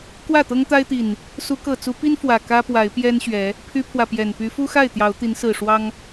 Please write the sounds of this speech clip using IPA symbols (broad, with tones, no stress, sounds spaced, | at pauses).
k w ä˥˨ t̪ ɤ˦ ŋ t̪ a˦ ɪ̯ t̪ i˨˩ n | s u˨˦ k ɤ˨˩ t͡s u˨˦ p i˦ n f w ä˨˩ k ä˦ p w a˨˦ ɪ̯ p j ɛ˦ n ɕ ɥ ɛ˨˦ | pʰ y˦ pʰ w ä˨ p j ɛ˨˩ n p y˨˦ f u˦ x a˥˨ ɪ̯ t̪ j ɑ˨˦ ʊ̯ t̪ i˨˦ n s ɹ̩˨˩ ʂ w ɑ˦ ŋ